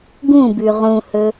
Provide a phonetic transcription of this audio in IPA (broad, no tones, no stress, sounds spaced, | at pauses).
ɡ ũ b ʉ ʁ ũ h ɵ